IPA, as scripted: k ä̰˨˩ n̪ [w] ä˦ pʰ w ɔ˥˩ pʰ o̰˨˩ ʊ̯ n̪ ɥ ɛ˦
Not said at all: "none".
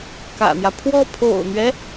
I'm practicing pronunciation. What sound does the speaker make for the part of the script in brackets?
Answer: j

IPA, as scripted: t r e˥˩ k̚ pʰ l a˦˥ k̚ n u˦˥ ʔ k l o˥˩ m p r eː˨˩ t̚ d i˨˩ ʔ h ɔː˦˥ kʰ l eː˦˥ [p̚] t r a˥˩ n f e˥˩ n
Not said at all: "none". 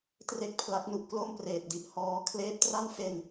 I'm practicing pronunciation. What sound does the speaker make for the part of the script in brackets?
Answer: p̚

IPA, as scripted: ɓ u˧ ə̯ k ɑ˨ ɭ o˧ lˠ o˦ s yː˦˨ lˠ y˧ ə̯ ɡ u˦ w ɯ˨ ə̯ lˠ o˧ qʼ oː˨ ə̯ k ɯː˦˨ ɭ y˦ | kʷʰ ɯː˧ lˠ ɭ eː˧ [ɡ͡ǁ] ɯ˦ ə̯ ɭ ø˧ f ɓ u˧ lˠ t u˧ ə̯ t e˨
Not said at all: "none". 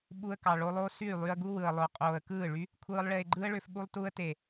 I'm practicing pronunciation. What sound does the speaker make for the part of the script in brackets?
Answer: ɡ͡ǃ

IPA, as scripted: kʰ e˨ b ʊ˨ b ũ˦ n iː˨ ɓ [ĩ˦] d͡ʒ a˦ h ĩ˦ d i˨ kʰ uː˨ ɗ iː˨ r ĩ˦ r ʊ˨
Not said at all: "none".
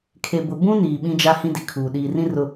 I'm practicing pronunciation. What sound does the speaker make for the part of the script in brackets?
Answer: ĩ˦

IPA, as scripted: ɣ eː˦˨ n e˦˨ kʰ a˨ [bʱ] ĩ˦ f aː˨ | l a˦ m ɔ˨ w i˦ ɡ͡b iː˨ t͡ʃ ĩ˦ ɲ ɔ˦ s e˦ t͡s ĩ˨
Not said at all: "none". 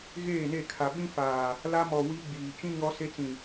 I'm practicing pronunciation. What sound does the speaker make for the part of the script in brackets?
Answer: ɓ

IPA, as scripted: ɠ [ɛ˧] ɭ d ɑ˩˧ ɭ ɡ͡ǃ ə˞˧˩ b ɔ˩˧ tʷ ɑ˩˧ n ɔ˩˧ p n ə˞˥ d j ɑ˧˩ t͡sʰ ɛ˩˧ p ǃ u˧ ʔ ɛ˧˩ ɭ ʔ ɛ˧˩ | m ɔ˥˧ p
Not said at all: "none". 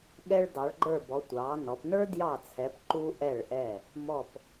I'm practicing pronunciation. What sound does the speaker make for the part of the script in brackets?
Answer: ɛ˧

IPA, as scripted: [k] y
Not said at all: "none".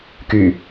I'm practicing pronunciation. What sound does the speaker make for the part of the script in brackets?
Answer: k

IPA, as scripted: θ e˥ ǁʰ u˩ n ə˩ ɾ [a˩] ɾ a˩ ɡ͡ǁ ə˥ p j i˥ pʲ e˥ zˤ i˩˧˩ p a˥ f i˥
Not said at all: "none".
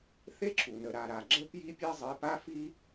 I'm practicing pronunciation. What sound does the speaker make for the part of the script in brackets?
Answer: a˩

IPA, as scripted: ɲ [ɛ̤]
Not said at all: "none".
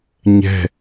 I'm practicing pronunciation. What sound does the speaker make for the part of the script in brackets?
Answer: ɛ̤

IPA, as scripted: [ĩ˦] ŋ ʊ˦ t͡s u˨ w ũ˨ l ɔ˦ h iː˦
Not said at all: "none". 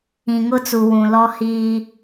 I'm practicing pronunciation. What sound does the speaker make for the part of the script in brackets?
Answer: ĩ˨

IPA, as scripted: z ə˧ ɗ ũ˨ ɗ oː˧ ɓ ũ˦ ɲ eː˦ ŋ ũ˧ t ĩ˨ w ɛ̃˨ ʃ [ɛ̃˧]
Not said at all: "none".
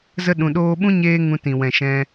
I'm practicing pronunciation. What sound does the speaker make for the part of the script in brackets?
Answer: ɛ̃˧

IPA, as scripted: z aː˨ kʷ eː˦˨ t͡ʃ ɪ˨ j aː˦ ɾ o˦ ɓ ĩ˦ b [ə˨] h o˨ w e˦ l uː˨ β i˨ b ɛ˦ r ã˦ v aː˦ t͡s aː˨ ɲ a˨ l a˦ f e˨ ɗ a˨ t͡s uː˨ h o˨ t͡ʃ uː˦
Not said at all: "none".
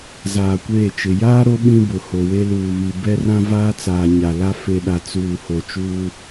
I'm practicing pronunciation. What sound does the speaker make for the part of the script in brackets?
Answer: ʊ˨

